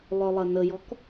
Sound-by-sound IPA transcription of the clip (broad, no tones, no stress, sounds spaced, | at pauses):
lˠ œ lˠ ɐ n ə j ɔ k